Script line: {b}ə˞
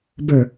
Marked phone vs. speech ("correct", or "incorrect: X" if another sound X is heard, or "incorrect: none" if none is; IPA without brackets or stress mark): correct